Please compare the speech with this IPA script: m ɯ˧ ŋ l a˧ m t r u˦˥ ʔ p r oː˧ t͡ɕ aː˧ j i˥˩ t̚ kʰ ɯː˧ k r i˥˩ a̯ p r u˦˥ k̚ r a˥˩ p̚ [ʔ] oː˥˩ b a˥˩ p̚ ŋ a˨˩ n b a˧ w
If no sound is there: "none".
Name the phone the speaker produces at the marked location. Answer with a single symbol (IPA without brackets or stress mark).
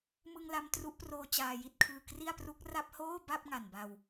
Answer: h